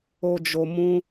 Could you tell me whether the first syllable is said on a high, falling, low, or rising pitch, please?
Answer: low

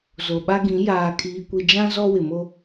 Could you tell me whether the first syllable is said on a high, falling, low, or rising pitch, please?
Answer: low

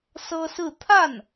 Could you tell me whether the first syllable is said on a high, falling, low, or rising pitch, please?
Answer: high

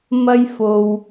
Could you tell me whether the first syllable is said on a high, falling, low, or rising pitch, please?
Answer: high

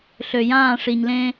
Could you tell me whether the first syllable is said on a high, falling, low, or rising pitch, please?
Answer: low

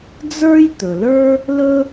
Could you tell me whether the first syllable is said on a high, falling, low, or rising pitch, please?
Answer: high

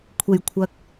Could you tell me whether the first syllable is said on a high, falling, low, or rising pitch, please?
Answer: low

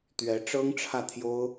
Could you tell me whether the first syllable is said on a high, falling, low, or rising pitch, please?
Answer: rising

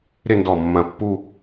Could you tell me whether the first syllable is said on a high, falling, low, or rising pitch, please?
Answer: falling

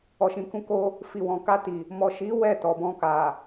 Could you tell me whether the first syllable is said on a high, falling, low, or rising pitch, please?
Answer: low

